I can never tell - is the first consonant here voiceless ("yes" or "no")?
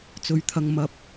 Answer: yes